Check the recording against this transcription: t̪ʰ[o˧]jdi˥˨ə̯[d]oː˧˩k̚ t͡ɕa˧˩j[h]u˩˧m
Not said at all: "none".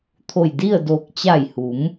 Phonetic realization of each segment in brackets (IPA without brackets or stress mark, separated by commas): o˧˩, d, h